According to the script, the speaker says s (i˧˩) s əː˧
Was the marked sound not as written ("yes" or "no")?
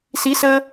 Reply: yes